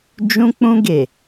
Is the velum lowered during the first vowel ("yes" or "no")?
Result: yes